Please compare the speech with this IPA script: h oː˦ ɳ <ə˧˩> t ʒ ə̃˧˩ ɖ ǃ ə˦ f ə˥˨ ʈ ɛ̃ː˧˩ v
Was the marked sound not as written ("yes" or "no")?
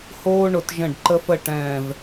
yes